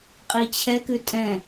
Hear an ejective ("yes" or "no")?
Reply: yes